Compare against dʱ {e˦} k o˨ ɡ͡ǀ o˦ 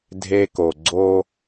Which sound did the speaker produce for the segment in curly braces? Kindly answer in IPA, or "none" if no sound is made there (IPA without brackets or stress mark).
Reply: e˦